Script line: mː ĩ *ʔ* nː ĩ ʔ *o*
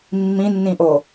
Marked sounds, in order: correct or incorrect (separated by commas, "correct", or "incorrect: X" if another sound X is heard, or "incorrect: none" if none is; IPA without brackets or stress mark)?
incorrect: none, correct